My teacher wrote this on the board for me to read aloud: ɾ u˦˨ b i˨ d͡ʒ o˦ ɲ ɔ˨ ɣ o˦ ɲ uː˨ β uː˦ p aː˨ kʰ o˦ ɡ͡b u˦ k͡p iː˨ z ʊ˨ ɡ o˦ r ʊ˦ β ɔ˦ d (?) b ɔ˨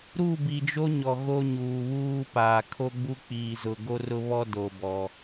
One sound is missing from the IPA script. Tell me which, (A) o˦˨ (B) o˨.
B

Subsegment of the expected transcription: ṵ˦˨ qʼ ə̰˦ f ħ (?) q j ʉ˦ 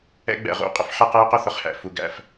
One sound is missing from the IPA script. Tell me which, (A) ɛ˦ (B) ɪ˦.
A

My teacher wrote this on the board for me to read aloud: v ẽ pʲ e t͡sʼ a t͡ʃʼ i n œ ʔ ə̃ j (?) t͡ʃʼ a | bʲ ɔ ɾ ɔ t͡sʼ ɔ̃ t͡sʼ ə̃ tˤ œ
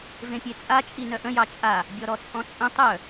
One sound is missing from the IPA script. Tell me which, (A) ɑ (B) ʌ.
A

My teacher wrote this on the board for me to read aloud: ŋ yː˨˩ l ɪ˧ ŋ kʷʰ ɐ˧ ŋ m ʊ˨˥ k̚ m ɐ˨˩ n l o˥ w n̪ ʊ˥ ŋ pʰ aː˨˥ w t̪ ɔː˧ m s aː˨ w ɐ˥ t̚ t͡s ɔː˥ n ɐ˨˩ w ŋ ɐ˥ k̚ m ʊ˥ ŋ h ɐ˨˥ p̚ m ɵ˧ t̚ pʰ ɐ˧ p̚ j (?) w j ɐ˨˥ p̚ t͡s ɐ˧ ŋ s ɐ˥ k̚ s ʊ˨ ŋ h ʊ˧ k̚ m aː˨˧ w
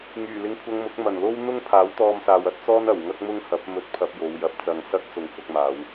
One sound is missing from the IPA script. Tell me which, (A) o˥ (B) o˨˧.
B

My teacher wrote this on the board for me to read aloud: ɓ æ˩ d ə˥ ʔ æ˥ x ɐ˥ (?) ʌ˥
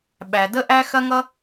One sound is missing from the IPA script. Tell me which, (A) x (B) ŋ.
B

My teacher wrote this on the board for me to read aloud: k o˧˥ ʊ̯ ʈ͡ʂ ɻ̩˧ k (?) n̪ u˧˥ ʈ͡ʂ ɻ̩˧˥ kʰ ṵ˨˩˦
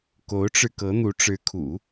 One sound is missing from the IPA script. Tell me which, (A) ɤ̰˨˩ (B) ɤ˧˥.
B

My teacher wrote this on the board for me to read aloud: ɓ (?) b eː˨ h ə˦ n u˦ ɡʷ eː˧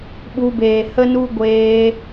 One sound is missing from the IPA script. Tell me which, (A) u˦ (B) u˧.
B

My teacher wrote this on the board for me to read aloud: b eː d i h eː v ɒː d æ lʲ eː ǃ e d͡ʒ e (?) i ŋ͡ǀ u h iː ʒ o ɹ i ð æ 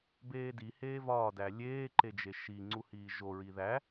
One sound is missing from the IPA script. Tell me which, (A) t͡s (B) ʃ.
B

